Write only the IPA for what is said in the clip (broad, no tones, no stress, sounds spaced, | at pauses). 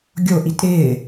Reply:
ɡʲ o ʔ i t ɾ ɪː